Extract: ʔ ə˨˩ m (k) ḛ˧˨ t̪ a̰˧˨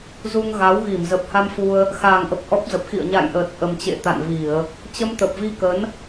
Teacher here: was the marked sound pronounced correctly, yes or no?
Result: no